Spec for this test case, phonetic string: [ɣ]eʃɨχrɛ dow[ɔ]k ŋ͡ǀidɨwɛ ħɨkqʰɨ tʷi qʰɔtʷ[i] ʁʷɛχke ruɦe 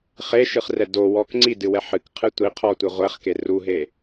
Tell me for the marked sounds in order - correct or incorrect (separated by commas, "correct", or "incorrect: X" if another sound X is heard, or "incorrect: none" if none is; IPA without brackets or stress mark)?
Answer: incorrect: χ, correct, incorrect: e